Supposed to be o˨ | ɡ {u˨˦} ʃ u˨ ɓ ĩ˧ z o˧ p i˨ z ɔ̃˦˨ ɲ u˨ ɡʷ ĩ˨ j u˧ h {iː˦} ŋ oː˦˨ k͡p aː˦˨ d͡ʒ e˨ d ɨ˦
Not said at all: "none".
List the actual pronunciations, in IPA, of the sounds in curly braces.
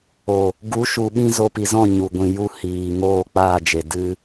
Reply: u˨˦, iː˨

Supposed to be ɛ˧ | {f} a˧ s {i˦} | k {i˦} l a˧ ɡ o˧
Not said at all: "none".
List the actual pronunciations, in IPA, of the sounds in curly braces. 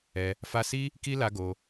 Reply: f, i˦, i˦

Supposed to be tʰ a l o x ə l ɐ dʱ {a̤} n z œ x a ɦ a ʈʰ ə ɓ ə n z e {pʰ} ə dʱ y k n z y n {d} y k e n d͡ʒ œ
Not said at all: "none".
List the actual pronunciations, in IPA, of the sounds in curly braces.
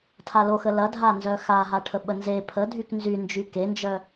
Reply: a, pʰ, d͡ʒ

